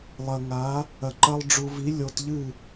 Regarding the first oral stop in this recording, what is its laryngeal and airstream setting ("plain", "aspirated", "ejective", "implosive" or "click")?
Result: click